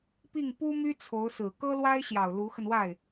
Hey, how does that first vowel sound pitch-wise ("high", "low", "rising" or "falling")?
falling